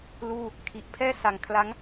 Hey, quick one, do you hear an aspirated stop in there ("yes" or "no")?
yes